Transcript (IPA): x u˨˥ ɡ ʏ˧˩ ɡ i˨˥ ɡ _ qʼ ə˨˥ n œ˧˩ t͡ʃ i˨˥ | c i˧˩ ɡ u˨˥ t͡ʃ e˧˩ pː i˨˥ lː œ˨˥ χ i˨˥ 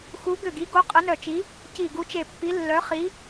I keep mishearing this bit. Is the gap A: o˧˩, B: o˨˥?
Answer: B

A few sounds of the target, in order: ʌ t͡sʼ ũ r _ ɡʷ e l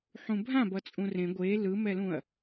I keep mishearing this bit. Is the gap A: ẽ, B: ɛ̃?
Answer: A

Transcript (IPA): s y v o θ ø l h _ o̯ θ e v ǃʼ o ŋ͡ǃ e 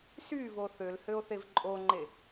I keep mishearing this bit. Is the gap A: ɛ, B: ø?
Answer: B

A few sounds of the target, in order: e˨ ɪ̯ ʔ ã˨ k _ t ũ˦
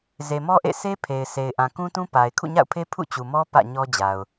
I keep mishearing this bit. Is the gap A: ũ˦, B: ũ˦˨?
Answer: A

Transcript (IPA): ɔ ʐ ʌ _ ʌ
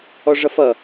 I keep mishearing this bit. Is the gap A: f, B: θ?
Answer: A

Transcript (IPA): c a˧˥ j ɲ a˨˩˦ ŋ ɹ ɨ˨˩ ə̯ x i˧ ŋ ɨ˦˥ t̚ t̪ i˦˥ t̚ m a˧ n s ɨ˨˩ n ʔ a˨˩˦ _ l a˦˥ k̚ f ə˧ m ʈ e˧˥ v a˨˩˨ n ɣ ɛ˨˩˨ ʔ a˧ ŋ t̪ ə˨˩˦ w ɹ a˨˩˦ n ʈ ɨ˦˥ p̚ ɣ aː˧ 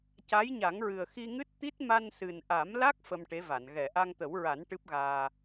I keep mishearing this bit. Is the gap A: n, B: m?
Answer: B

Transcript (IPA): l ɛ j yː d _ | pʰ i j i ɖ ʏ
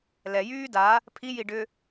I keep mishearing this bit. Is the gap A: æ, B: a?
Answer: B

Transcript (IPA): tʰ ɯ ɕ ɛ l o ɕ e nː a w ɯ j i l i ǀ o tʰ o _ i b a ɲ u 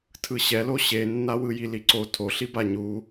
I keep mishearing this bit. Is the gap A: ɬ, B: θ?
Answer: A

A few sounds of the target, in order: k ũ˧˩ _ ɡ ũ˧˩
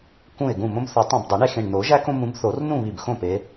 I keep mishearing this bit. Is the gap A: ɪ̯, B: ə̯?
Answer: A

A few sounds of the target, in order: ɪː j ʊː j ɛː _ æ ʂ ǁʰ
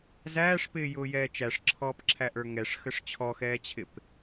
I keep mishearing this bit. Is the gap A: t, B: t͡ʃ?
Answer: B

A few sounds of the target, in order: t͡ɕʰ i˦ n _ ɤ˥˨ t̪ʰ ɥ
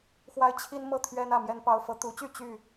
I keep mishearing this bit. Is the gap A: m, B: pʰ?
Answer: A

